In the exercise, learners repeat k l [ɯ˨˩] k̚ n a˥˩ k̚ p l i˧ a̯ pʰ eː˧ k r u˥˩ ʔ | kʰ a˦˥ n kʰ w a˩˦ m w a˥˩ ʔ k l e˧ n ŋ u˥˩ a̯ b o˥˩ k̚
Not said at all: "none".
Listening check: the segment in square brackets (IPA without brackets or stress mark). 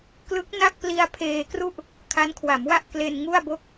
ɯ˦˥